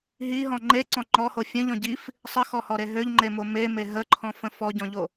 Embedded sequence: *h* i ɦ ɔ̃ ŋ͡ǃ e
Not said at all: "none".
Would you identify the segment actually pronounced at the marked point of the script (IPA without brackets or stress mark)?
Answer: ɦ